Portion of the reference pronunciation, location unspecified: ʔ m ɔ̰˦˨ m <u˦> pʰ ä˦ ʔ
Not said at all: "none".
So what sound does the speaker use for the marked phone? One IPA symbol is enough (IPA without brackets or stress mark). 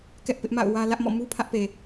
u˦